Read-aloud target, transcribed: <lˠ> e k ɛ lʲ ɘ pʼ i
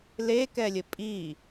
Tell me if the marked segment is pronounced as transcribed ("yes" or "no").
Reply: no